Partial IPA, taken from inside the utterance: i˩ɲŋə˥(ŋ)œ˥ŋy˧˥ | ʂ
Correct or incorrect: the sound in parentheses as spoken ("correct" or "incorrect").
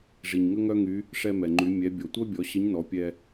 correct